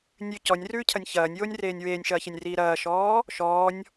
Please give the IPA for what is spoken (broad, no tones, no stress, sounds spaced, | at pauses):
nʲ ʉ c ɔ nʲ r ʉː cʰ ɐ nʲ ç ɐː nʲ j oː nʲ r eː nʲ w eː nʲ ʃ ɐː ç e nʲ r iː ɾ ɐː ʃ ɔː | ʃ ɔː nʲ